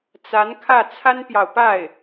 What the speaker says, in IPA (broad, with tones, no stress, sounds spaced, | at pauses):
t͡s a˧˥ n kʰ ä˥˩ t͡sʰ a˥ n p j ɑ˨ ʊ̯ p a˥˩ ɪ̯